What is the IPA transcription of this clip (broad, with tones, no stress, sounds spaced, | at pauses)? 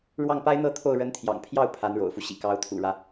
ɻ w ɑ˥˩ ŋ p a˥ ɪ̯ n̪ ɤ˥ t̪ʰ o˥˩ ʊ̯ ɻ ə˧˥ n t̪ʰ j ɑ̰˨˩ ŋ pʰ j ɑ˥˩ ʊ̯ pʰ a˧˥ n ɻ o̰˨˩ ʊ̯ f u˦ ɕ ḭ˨˩ k ɑ˧˥ ʊ̯ t̪ʰ ṵ˨˩ ɻ ä˦